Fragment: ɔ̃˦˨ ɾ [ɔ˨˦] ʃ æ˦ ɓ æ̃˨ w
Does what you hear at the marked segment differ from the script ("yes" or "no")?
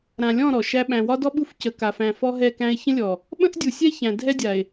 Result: yes